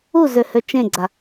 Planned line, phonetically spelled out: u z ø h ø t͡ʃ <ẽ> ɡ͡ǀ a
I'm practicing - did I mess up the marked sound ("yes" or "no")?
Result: no